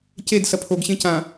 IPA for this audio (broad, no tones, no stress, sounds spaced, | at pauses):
c e d s ɐ pʰ o ɡ ɕ ẽ c ã